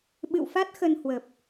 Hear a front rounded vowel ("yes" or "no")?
no